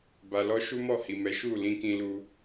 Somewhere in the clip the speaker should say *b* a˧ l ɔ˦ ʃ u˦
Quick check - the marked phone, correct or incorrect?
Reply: correct